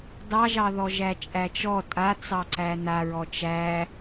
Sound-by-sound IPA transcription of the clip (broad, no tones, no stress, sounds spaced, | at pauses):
d ɑ ʒ ɑ ð ɔ ʒ æ t͡ʃʼ æ t͡ʃ ɔ tʼ a t͡s ɑ ǀ æ n a ɹ ɔ t͡ʃ æ